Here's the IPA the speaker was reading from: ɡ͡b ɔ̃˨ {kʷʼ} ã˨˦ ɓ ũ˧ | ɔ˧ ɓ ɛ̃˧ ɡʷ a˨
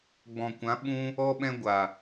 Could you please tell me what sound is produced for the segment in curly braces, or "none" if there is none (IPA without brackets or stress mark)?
kʷ